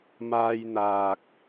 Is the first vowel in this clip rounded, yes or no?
no